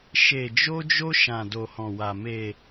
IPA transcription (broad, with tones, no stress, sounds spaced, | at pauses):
ʃ e˧ d͡ʒ o˦ d͡ʒ o˦ ʃ ã˧ d o˧ h ɔ̃˧ w a˧ m e˧